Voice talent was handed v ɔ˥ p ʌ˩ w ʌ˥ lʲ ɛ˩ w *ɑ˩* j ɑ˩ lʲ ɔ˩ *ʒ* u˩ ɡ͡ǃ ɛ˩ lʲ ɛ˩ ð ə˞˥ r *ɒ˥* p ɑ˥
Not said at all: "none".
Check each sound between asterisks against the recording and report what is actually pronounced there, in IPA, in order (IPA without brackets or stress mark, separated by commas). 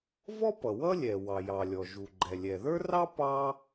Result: ɑ˩, ʒ, ɑ˥